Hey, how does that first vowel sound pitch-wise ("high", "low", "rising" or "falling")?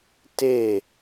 falling